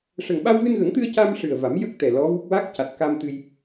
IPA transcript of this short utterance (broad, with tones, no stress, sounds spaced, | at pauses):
ʂ ə˨˩ ŋ ɓ a˧ w v ɨ˧ n ɣ ə˨˩˦ ŋ t̪ ɨ˧ ə̯ c a˧ m ʂ ɨ˨˩ ə̯ v a˨˩˦ m j ə˦˥ k̚ t̪ ɛ˨˩ l ɔ˧˥ v u˦˥ k̚ w a˦˥ k̚ c a˨˩ t̚ k a˧ m t̪ ɨ˧ j